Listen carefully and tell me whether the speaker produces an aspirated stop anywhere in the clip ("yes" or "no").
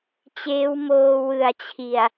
yes